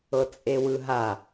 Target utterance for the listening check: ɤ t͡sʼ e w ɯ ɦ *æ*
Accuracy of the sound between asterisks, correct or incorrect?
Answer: incorrect